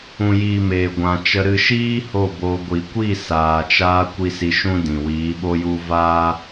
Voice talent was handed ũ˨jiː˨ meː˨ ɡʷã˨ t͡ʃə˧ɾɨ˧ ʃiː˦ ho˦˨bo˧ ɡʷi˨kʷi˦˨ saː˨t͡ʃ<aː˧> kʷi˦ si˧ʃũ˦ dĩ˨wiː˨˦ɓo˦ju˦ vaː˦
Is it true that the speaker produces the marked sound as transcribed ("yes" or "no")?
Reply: yes